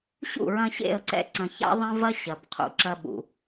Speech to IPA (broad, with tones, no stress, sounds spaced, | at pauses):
ɕ ṵ˦˨ ɹ ɐ̃˧ ɕ ḛ˦˨ ə̯ ǀ ɛ̰˦ ǀ ɐ̃˨ ç a̰˦ ðˤ ɐ̃˦ v ɐ˦ ɕ ɐ˨ b qʰ ṵ˨ ǁ ɐ˧ ɓ ṵ˨